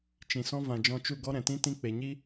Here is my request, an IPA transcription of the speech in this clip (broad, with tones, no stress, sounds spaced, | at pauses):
t͡ʃ ĩ˨ s ɔ̃˦ v ã˨ d͡ʒ ɔ̃˧ t͡ʃ u˦˨ ɡ ɔ˦ ɾ ɛ̃˨ t ĩ˦ t ĩ˦ k͡p e˨ ɲ i˦